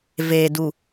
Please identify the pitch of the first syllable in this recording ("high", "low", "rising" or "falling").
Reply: low